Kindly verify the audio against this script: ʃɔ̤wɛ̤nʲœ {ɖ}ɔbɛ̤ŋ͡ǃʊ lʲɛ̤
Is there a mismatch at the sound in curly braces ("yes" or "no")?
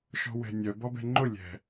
yes